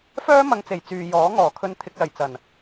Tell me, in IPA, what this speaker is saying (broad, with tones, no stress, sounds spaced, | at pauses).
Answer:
f œː˥ m ɐ˧ ŋ t͡s e˨˩ j t͡s yː˨ j ɔː˨˥ ŋ ɔː˨˩ kʰ ɵ˧ n t̪ʰ ɪ˧ k̚ l ɐ˨˩ j t͡s ɐ˨˩ n